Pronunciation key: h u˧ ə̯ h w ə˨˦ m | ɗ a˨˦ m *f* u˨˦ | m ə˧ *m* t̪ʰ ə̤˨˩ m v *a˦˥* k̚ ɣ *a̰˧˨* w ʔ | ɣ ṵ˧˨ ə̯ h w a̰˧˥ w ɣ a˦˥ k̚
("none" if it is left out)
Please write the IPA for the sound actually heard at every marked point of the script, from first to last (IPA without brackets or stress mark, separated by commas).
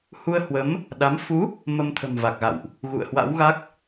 f, m, a˨˩, a̰˧˨